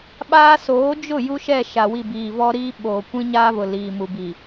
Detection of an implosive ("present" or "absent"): present